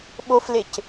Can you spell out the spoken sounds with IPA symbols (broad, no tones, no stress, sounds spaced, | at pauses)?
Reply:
ɓ o f l e c